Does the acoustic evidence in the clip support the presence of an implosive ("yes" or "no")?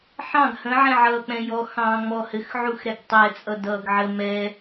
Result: no